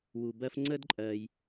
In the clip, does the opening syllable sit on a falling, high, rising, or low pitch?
low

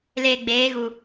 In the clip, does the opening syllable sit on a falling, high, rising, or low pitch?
low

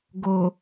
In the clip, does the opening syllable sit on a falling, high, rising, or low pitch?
low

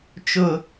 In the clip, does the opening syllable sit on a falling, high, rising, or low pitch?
high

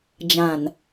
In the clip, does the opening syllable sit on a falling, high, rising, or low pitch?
low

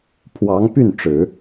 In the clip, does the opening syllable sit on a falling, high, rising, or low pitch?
rising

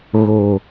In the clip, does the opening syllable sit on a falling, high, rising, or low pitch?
low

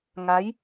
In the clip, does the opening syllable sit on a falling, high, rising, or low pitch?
rising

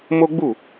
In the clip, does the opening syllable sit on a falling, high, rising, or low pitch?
high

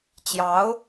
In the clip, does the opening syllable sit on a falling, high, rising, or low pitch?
rising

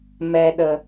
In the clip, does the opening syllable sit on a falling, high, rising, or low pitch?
low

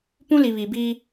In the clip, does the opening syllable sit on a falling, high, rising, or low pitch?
high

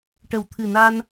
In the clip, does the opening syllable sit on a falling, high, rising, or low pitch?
low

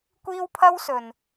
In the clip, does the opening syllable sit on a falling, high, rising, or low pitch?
high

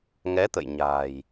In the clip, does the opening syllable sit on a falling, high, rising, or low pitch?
rising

